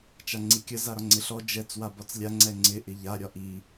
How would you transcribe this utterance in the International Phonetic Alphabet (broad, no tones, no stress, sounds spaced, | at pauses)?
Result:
t͡ʃ a ŋ͡ǀ i kʲ ə z a ɾ ɒ ŋ͡ǀ ɪ ɬ ɔ d͡ʒ ɛ t͡s w a b ɒ t͡s lʲ a ŋ͡ǀ ɛ ŋ͡ǀ ɪ ʔ ɪ ʎ a ɾʲ ɒ ʔ i